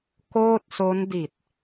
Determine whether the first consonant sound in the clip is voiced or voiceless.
voiceless